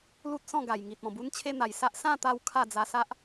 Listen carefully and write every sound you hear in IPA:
l u˦ t̚ s ɔ̃˥˧ ɡ a˨˩ j ŋ i˨ t̚ ɔ̃˨˩ b u˦ n t͡ɕʰ e˦ n̪ a˨˩ j s a˦ ʔ s ã˥˧ t̪ a˧ w kʰ a˥˧ d͡z a˧ s a˦ ʔ

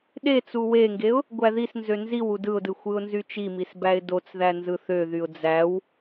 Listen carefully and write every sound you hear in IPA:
ɗ e t͡s u w e ŋ ɡ e ʊ̯ | ɡʷ æ ð i s n z ø n z i w u d ɯ ʊ̯ d ɯ xʷ ɯ ʊ̯ n z y t͡ʃ i m i s b æ ɪ̯ d o t͡s ð æ n z ɯ θ ø ð y ʊ̯ d͡z æ w

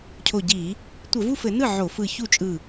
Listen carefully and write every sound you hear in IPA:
cʰ o˧˩ ɟ i˧˩˧ | tʷ ɘ˧˩˧ v u˥˩ f ɘ˧˩˧ n ɯ˥˩ ʕ o˧˩˧ f ɯ˧˩ ç u˥˩ t͡ʃʼ ɯ˧˩

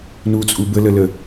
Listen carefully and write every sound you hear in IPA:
n u t͡sʼ u b ə l ə l ə

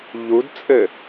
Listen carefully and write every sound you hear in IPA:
ʎ u d t͡sʼ ɘ

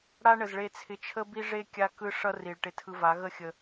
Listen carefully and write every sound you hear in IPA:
ɽ a˦ ɳ ə˨ z ɭ e˧ t͡sʰ ɪ˧ t͡ʃʰ ə˦ b i˦ ʐ e˦ kʲ a˦ k ɯ˦ ʂ ʌ˦ r i˨ ɭ ʈ ɪ˧ tʰ ɯ˧ v a˨˦ ɣ ə˦ xʲ ə˧

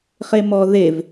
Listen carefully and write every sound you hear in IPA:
χ e m ɔ ð e v

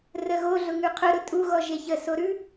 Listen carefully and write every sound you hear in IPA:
r ə ɣ o ɮ ʊ ŋ ʉ qʰ ʊ ɾ ʊ tʼ u ɣ ɔ ʒ e ç ə s o ɾ ʉ

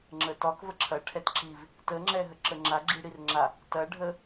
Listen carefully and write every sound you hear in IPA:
ŋ͡ǁ ə t ɒ k v ə ǁʰ ɐ ʈʰ ɛ t ǁ i v | t ə ŋ͡ǁ ɛ ɦ ə ǁ ə ŋ͡ǁ a ɡ͡ǁ i ɽ i r ŋ͡ǁ a | t ɐ ɖʱ ə

